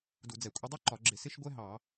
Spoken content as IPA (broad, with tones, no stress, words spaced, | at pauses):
du˧˩˧d͡zɛ˧˩˧ kʷʼɪ˥ dˤu˥ǃɒ˧˩˧ɡ͡ǁɪ˧˩˧ sɪ˥ʃ ɡʷɛ˥ɦɑ˧˩˧